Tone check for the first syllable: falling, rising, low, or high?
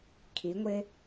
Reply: rising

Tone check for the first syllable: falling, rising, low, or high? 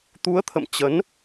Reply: rising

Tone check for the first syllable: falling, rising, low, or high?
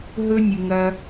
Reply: high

